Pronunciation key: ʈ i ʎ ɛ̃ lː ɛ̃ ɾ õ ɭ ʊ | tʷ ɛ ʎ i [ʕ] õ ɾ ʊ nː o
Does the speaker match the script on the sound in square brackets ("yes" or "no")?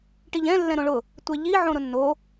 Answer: yes